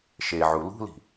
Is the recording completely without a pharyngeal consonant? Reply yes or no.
no